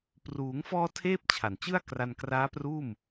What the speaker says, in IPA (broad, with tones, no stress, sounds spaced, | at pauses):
p r uː˩˦ ŋ f ɔː˧ tʰ eː˥˩ p̚ t͡ɕʰ a˨˩ n t͡ɕ ɯ˥˩ a̯ k r a˧ n k r aː˦˥ p r uː˥˩ m